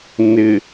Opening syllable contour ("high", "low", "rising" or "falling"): low